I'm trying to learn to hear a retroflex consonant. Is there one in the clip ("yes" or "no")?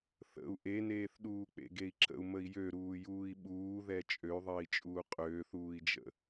no